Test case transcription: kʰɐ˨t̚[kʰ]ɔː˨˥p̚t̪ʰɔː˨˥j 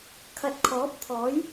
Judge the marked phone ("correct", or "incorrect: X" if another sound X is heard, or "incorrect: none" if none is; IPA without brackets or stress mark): correct